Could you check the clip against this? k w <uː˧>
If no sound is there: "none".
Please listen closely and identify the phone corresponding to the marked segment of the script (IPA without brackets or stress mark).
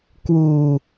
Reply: uː˧